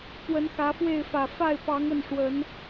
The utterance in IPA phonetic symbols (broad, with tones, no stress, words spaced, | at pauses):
pwə˨˦nxä˨˦fwe˥˨ɪ̯fä˨˩ fa˥˨ɪ̯pɑ˨˦ŋə˥˨n ʂwə˨˦n